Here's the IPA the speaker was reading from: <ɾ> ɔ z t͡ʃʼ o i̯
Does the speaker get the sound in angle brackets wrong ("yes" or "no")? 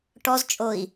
yes